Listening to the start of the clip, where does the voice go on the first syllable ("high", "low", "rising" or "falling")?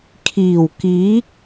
low